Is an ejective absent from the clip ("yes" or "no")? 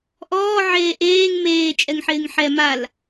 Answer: no